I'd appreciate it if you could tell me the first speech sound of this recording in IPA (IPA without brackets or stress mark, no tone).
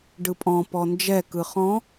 ɖ